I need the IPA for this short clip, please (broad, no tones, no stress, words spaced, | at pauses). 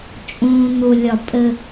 t͡ʃʼũːn̪u lʲɒpʼɘ